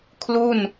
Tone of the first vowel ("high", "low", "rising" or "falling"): falling